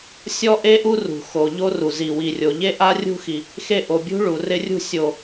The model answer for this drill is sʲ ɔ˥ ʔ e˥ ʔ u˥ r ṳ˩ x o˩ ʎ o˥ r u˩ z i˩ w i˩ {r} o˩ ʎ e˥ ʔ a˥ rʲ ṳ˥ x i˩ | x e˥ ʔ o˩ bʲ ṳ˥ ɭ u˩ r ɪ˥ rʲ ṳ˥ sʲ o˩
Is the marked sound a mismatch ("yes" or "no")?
yes